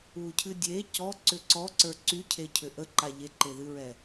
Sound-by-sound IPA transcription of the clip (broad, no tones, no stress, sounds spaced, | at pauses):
u cʰ ɨ dʲ e c ɔ ǀ ʏ ǀ ɔ ǀ ə˞ ǀ y cʰ e cʰ ʏ ʔ ə ǃ a ʎ e ǃ e ð ɨ ɹ ɛ